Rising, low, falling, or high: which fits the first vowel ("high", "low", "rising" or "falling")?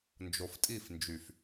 low